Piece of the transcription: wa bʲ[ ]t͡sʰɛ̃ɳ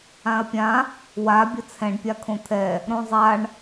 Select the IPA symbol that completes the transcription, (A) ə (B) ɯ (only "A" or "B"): A